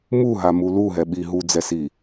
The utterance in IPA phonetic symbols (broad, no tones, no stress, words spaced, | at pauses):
muɦamu luɦɛɓi ɦud͡zɛsi